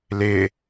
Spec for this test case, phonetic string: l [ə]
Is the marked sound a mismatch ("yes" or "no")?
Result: yes